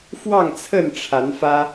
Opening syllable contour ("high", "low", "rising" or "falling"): falling